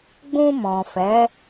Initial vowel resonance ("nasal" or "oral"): nasal